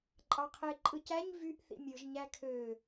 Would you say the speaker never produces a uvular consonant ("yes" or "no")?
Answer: no